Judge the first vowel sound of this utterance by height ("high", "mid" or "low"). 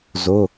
high